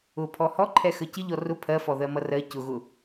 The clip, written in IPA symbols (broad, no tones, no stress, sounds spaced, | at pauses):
ʊ pʰ ɔ h ɔ ǃʰ ɛ x ə c ɪ ʎ ɔ r ʊ pʰ ɜ f ɔ ð ɜ m ʌ r ɜ c ʊ ɣ ʊ